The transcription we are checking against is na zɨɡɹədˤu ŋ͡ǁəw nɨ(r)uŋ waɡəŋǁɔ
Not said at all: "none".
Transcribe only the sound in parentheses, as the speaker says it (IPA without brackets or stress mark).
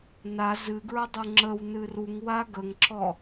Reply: r